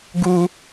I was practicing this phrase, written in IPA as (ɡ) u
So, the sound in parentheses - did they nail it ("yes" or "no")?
yes